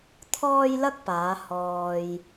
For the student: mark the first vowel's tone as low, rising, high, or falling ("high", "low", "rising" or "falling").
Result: high